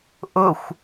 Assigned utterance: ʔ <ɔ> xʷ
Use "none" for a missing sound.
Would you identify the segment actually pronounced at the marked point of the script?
ʊ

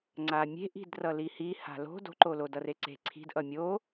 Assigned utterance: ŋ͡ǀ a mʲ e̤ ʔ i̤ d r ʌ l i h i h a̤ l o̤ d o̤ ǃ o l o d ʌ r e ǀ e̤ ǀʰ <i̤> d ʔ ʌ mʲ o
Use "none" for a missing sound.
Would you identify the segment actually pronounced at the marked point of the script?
i̤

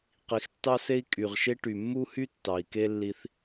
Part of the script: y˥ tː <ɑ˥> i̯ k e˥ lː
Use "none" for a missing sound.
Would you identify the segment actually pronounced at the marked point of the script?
ɑ˩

